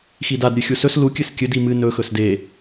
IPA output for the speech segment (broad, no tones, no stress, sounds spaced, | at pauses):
x i d a d ɾʲ ʉ xʲ u s ɵ s l u kʲ ɨ s kʲ ɨ d i m ɨ n ɵ x ɵ s d e